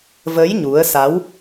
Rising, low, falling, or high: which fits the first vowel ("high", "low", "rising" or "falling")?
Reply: rising